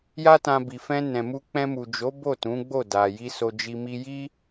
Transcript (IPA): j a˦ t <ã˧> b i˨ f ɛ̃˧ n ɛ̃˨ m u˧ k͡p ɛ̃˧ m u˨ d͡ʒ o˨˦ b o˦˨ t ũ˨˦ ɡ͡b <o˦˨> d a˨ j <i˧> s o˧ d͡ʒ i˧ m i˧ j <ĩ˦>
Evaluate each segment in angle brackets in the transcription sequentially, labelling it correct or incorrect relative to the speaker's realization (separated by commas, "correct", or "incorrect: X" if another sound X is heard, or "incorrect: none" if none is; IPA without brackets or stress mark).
correct, correct, correct, incorrect: i˦